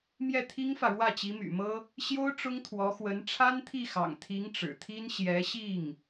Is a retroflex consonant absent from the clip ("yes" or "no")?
no